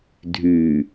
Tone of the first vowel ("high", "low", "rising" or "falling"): low